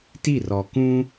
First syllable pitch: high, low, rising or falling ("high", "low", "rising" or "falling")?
falling